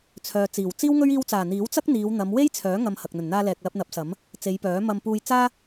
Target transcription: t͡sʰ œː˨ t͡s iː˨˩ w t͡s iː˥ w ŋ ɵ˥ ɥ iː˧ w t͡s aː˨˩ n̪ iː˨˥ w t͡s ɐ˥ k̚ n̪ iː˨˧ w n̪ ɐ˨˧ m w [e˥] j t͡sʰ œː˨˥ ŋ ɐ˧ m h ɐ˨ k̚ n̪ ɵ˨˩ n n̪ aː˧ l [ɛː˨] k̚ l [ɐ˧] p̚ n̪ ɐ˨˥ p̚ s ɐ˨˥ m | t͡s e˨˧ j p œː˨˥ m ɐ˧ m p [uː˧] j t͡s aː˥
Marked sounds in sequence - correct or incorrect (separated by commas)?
correct, correct, correct, correct